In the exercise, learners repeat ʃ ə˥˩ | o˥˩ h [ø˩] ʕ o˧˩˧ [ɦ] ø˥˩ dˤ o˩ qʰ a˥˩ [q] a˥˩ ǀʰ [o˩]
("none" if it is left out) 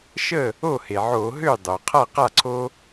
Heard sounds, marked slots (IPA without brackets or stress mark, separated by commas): e˩, ɦ, q, o˦